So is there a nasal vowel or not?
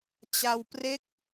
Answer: no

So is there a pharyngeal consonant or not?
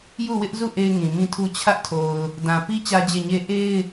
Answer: no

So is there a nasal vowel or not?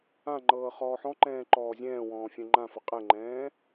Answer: yes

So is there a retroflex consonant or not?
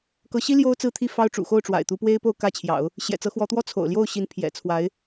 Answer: yes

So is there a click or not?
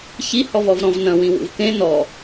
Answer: no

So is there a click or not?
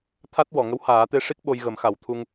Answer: no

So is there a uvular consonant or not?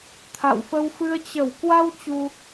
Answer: no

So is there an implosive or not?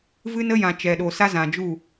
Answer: yes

